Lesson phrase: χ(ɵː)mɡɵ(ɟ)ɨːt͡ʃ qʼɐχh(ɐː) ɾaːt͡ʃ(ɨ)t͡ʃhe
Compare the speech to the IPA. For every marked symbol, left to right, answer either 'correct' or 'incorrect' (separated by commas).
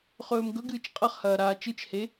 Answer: correct, incorrect, correct, correct